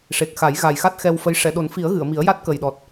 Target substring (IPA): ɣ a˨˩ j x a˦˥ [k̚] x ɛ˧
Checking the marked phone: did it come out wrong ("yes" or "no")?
yes